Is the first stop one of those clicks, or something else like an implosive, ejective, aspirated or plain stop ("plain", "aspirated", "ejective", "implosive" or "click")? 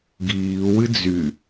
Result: plain